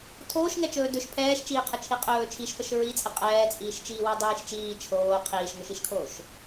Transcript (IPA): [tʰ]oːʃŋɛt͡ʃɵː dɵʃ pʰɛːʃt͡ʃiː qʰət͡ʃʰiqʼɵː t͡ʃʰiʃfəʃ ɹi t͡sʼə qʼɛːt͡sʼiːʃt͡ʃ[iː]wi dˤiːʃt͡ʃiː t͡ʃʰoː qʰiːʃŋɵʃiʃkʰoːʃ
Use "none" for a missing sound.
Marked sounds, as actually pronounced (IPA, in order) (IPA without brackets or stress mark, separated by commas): tʰ, iː